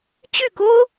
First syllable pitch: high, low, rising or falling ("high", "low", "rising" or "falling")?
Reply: falling